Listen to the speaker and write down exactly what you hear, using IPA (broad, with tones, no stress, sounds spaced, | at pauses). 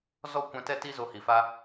z ɔ˦ kʷ ɛ̃˧ t ɛ˦ t i˦ z o˧ h i˨ f a˦